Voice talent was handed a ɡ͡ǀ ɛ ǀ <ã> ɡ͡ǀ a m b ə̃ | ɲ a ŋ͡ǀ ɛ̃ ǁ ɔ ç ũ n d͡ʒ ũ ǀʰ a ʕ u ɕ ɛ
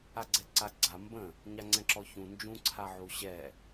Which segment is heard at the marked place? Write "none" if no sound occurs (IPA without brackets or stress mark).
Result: a